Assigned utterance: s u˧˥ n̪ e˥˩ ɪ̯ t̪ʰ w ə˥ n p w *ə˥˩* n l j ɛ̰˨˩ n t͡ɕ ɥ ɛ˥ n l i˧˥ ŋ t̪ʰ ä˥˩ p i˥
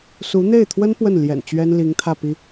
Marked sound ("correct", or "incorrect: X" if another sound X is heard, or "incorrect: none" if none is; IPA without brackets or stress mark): correct